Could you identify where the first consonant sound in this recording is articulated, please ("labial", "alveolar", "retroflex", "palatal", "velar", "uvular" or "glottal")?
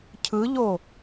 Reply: palatal